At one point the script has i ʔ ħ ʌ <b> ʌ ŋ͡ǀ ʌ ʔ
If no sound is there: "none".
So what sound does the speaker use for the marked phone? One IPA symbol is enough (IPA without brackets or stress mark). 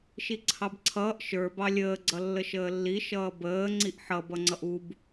b